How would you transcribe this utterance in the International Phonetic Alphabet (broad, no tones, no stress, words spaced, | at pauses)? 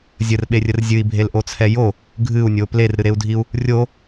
zʲərɓerʲər zʲɨi̯bʱelʔot͡sʰɛ jo | ɡʱɨu̯nʲo plerɾɨɾeu̯dʱiu̯ | rʲo